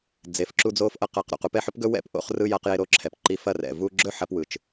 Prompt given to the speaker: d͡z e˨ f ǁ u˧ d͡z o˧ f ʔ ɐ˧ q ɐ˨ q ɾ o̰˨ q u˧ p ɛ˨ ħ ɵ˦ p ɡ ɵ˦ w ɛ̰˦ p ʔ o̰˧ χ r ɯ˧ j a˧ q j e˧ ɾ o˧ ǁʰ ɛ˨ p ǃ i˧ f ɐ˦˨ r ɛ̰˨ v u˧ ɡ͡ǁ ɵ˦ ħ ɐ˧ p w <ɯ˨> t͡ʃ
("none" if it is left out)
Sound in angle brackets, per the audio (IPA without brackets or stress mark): ɯ˨